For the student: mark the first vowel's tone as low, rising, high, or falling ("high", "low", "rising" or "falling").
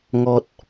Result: high